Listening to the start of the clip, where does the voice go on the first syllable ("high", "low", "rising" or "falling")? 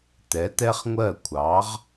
rising